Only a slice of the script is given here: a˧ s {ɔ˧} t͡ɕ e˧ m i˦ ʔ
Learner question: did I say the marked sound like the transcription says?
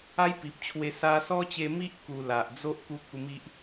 no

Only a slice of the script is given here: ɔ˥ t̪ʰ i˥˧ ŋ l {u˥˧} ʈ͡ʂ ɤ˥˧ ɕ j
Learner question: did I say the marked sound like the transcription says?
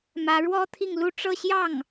yes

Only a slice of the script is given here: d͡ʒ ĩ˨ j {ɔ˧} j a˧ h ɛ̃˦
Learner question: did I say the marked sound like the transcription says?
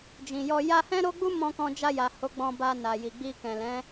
yes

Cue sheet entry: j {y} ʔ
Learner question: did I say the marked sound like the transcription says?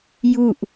no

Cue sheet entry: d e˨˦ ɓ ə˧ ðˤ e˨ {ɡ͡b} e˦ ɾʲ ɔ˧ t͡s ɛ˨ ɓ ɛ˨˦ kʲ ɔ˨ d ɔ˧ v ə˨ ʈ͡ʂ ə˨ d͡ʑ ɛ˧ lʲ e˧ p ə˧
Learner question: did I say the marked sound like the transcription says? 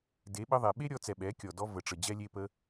no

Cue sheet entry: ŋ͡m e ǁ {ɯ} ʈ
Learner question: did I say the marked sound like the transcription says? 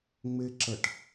no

